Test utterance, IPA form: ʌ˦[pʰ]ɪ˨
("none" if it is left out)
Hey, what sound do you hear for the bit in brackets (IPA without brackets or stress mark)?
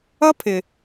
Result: pʰ